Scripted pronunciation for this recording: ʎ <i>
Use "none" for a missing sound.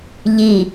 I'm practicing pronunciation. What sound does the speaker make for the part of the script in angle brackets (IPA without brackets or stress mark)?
i